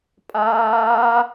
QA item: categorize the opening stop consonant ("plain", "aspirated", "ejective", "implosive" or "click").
ejective